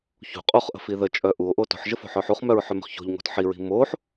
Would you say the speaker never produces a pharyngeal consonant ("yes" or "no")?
no